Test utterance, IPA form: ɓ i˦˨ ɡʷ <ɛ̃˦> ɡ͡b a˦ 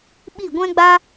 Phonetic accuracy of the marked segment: correct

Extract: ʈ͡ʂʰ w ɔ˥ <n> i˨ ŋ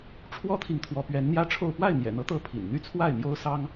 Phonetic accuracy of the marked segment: incorrect: t̪ʰ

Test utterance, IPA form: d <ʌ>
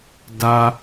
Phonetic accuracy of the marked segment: incorrect: a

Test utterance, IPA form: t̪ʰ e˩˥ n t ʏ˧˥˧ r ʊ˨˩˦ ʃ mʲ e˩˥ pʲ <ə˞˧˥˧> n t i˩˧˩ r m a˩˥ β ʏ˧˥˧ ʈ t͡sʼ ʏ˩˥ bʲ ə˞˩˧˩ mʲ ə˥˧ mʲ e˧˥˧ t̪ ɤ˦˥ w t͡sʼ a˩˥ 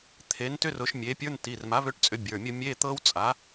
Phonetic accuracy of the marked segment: correct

